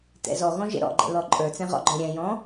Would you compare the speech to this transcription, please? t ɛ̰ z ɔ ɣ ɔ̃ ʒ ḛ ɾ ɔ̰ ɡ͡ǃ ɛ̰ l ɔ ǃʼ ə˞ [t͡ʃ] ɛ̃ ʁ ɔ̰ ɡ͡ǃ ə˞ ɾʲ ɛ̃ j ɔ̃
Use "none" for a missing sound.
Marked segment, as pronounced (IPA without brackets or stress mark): t͡s